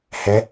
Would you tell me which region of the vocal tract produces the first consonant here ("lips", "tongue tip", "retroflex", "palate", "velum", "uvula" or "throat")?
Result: throat